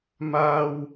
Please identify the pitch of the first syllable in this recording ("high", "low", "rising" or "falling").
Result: high